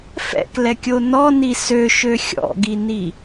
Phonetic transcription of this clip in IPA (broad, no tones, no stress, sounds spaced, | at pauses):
f ɛ̰ k l ɛ kʲ o n ɔ n i s ø ʃ ø xʲ ɔ̰ ɡ i n i